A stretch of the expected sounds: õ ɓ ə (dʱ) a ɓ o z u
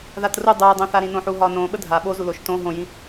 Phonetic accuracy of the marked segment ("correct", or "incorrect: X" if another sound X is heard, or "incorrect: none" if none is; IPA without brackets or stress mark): correct